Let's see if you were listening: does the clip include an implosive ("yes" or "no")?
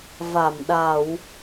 yes